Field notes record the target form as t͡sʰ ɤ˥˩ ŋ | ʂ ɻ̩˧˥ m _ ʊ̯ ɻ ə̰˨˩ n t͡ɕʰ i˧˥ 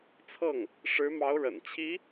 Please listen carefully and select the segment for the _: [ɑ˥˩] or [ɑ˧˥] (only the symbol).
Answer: ɑ˧˥